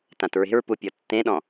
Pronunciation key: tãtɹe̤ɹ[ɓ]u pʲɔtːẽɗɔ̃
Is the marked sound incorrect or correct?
incorrect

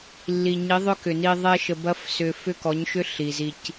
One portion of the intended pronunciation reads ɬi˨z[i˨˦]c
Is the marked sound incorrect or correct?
incorrect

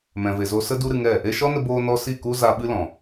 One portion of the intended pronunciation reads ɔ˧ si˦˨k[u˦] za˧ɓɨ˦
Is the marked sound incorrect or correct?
correct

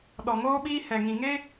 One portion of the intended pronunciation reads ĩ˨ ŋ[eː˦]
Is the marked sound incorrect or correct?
correct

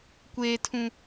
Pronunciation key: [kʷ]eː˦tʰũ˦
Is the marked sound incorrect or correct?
correct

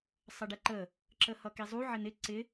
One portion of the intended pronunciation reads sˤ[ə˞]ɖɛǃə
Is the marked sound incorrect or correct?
incorrect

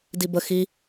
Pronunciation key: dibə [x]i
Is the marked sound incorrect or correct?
correct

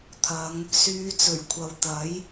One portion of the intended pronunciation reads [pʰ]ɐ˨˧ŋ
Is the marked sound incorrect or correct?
incorrect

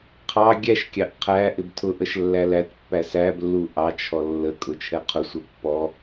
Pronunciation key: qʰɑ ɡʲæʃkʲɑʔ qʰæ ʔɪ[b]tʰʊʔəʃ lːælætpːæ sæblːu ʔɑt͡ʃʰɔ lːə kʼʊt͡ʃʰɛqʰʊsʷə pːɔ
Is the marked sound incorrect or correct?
correct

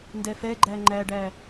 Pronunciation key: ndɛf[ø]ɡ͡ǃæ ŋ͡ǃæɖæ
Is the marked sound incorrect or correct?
incorrect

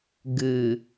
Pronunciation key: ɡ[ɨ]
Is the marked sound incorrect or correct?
correct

